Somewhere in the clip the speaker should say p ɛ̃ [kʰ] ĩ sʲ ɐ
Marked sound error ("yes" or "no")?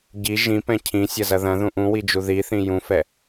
yes